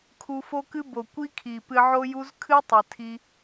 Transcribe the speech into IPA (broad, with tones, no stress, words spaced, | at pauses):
kʰu˧fo˦kɨ˦ bo˨ kʷi˦kʰi˨pɨ˧ ʕo˦ju˦z kʰɨ˦tˤɨ˨tʰi˧